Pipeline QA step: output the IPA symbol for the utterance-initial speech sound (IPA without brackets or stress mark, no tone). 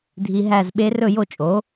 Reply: dʱ